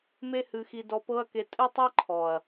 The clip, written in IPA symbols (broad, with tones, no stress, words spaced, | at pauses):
me˦hɨ˧xi˧ dɔ˧pɤ˦ɐ̯ke˧ tʼɨ˦tˤe˦ǃʰɔ˨ɐ̯